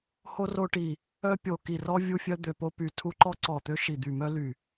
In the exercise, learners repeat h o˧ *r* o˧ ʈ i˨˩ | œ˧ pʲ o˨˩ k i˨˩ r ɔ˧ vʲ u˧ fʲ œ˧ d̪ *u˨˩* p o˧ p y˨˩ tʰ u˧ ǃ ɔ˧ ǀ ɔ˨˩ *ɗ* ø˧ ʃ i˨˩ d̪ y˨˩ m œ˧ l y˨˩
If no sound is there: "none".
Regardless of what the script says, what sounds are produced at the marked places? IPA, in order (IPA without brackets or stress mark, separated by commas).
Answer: r, ø˨˩, t̪